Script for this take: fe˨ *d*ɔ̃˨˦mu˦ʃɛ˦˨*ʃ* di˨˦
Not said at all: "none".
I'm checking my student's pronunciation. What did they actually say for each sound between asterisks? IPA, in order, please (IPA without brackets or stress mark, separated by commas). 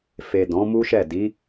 d, none